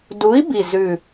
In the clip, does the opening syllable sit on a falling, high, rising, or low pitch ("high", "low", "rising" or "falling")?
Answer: rising